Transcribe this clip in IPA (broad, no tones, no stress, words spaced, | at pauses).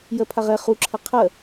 jɜpʰaʁɛ χu ǁʰɐqʰɜ